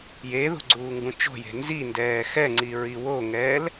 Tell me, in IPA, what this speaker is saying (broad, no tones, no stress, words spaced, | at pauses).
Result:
jeðo̤ ɡ͡ǀuːŋɡũt͡ʃo̤je̤ nzindɛː xɛŋ͡ǀi ɹiwoŋɛːl